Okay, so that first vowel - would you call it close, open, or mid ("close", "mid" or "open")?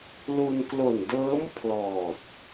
close